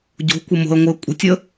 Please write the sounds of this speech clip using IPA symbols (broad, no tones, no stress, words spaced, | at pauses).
ɟo̤kʷə mo̤ə̯ŋʷɨə̯ kʷʼə̤tʲə